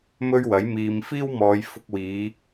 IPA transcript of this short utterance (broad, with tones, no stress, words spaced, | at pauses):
mɵ˥ɥwɐ˨˥jmiː˧m fiː˥wmɔː˨˧j fʊ˧k̚wiː˨˧